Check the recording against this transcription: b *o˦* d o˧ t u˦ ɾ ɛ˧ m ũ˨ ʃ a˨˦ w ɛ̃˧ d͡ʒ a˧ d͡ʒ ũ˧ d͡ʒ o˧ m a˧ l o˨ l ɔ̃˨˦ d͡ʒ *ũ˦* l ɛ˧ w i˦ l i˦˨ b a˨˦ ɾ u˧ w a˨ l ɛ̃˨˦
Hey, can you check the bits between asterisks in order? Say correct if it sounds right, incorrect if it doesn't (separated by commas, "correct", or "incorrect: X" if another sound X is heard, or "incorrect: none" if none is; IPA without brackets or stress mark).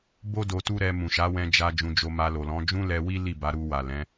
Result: correct, correct